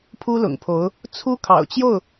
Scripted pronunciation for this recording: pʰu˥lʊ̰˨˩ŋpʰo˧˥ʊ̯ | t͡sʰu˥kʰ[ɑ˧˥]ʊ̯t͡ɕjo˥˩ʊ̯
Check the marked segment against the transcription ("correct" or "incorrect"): incorrect